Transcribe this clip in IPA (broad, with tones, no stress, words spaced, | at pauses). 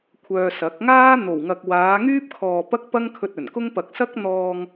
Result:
kʷʰœː˧sɐ˨˥k̚ ŋaː˥n̪o˨˩wŋɐ˨k̚ waː˨˧ŋyː˥p̚kʰɔː˨ pɐ˥k̚ pɐ˥ŋkʰɵ˧t̚ ɵ˨˩nkʊ˥ŋ pɐ˨k̚sɐ˥k̚n̪ɔː˧ŋ